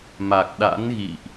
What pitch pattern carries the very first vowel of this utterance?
low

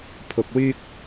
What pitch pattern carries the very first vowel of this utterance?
low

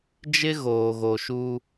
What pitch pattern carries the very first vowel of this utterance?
high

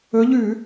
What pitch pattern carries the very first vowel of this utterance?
rising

